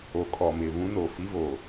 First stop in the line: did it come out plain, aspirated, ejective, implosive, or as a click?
ejective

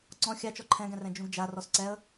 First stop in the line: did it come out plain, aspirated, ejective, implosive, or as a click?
click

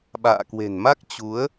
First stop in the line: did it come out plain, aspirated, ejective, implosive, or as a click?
implosive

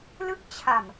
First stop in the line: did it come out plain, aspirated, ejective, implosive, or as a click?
plain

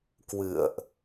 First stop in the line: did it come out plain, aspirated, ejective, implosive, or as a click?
plain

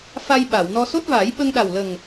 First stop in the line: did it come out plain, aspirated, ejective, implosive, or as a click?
implosive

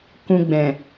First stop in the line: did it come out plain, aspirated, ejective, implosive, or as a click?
plain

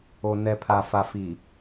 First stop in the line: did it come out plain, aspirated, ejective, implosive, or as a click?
aspirated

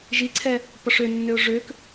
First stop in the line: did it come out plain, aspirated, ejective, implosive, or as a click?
click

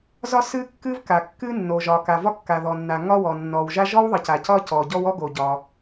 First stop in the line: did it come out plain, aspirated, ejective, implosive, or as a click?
plain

